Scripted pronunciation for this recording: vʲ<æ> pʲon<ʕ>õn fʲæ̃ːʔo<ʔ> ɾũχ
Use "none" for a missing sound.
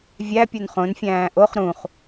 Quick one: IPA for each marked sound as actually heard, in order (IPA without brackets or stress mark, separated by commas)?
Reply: æ, χ, χ